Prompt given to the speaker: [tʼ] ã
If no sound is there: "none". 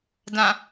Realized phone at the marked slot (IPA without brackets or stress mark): d